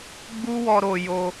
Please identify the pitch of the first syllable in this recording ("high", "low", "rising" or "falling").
high